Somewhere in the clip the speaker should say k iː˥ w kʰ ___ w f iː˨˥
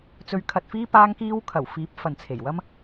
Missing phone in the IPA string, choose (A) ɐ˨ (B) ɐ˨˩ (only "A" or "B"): B